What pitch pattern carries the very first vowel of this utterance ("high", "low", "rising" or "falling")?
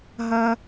high